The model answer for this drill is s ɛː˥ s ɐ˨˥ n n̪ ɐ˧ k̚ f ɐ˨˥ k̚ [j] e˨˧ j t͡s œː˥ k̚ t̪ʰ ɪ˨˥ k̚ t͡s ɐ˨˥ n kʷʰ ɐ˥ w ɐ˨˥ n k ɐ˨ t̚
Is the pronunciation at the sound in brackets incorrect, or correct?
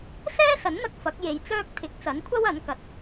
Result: correct